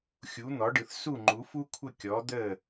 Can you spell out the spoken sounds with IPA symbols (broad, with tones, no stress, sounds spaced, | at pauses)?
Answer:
xʲ u˩˥ n̪ ɔ˩˥ ɖ ɯ˩ θ s u˥˩ ŋ͡ǃ u˩˥ f u˥ kʷʰ ə˥˩ kʲ ɔ˩˥ d̪ ə˥˩